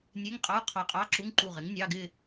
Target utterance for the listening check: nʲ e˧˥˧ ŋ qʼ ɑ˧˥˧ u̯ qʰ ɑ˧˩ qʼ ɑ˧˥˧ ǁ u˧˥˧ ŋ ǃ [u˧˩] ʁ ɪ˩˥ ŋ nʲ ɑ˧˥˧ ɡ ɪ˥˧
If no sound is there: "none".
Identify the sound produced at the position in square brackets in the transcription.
u˧˩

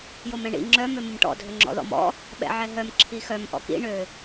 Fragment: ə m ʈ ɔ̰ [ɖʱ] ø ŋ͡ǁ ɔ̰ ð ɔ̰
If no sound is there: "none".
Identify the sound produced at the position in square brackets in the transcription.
dʱ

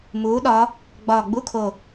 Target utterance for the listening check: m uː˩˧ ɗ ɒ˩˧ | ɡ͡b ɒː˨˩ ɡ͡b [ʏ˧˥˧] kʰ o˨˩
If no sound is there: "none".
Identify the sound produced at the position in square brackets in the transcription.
u˧˥˧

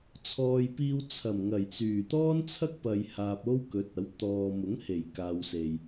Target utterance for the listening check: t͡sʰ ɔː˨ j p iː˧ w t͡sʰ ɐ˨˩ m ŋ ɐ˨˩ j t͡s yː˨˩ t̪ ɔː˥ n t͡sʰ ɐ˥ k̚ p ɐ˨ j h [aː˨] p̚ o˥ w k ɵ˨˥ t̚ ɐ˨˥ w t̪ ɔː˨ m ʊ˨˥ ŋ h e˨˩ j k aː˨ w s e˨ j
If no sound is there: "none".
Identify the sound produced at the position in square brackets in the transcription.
aː˨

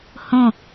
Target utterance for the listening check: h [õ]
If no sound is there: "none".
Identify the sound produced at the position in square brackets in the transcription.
õ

